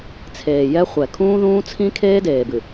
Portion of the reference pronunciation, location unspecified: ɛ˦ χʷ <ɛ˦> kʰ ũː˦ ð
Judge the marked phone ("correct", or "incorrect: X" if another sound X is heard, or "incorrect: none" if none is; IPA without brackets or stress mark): incorrect: ɛ˨